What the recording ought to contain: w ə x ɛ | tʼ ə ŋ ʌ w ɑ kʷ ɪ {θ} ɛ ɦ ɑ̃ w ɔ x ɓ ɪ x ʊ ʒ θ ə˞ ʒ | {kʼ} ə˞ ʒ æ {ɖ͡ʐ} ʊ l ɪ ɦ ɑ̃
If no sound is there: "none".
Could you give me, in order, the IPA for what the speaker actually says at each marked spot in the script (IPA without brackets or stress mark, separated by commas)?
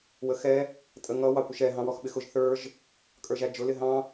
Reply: ʃ, kʼ, d͡ʒ